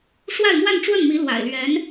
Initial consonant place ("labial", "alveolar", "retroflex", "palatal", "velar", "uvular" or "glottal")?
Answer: retroflex